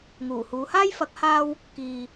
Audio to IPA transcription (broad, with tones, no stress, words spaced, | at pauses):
ŋuː˨˩huː˨˧ haː˥jfɐ˨˥k̚haː˧w | kiː˨